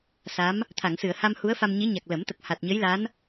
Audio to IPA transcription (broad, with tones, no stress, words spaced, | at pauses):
sa˧˥m | t̪ʰa˨˩˨ŋsɨ˨˩˨ə̯ha˧m hu˧˥ə̯fa˧mɲi˧˥ɲa˨˩k̚ lə˨˩˦mt̪ə˨˩k̚ ha˨˩t̚ɲə˧˥jla˧˥n